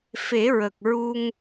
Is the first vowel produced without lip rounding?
yes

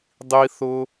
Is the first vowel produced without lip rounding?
yes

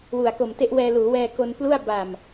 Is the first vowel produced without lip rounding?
no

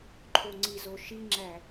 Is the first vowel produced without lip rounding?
no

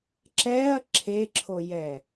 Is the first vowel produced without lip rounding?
yes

